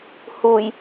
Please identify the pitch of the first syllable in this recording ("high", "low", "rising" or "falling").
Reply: low